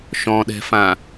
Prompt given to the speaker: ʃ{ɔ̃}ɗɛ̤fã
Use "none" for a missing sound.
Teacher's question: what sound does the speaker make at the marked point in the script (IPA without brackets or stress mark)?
ɔ̃